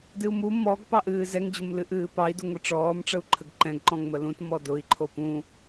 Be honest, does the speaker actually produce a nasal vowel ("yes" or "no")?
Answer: yes